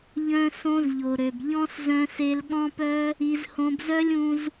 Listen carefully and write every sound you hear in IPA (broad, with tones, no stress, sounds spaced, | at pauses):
ʎ œ̃˦ s õ˦ z ʎ o˨ ɾ ø˨ b ʎ ɔ̃˦ s z œ̃˧ s e˧ l ɠ ɔ̃˦ p œ˦ | i˧ z h õ˧ b z œ˦ lʲ ũ˧ z